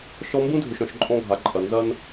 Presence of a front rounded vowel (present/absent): present